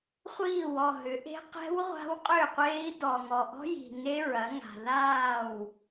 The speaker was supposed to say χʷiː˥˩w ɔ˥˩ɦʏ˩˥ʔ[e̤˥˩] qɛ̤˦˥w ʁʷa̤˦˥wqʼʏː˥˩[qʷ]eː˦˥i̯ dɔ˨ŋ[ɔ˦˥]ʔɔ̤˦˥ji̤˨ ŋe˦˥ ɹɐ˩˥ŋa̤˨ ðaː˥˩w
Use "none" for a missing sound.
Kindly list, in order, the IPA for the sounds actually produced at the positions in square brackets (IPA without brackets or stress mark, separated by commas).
e̤˦˥, qʷ, ɔ˨